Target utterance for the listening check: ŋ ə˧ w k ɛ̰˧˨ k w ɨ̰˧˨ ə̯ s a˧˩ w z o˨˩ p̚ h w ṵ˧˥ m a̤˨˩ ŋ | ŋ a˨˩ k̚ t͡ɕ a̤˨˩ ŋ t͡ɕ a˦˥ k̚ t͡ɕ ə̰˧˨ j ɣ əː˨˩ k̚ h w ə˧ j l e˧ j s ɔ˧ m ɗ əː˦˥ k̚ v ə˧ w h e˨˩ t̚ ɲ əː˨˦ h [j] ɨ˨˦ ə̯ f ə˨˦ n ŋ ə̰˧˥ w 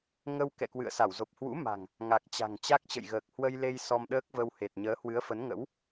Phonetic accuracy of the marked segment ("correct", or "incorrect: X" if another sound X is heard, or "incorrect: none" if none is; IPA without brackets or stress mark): incorrect: w